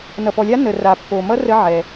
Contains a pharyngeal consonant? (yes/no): yes